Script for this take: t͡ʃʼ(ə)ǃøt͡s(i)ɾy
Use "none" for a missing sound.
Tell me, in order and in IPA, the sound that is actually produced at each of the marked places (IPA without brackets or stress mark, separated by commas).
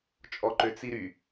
ɔ, i